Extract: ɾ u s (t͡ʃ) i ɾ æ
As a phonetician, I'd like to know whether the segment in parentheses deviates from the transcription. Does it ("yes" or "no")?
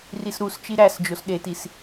no